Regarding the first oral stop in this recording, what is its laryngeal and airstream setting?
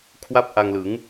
aspirated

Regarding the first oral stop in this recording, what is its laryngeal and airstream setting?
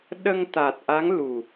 implosive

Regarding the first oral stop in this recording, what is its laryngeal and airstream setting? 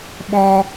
implosive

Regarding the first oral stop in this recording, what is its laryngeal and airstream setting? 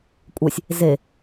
ejective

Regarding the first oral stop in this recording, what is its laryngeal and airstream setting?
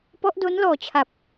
plain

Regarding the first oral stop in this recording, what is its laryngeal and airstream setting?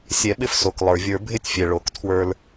implosive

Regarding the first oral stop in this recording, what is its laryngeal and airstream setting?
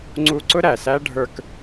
click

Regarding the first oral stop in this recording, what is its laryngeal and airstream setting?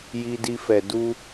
plain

